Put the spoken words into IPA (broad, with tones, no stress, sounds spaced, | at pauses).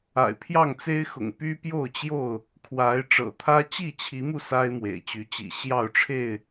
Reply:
a̰˨˩ ɪ̯ pʰ j ɑ˥˨ ŋ t͡s e˦ ɪ̯ x ʊ̰˨˩ ŋ p y˦ p j o˥˨ ʊ̯ t͡ɕ j o˥˨ ʊ̯ | kʰ w a˨˦ ɪ̯ ʈ͡ʂ ɤ̰˨˩ t̪ʰ ä˦ t͡ɕ i˥˨ t͡ɕʰ i˨˦ m u˧ s a˦ ɪ̯ m w ḛ˨˩ ɪ̯ t͡ɕ y˨˦ t͡ɕ ḭ˨˩ ɕ j ɑ˥˨ ʊ̯ ʈ͡ʂʰ e˥˨ ɪ̯